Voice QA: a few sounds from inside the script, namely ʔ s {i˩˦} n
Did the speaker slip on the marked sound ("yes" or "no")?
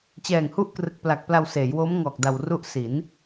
no